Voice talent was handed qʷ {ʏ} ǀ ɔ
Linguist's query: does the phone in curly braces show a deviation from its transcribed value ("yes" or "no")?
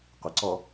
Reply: yes